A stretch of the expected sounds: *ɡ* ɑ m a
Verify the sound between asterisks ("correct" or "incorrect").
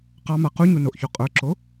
incorrect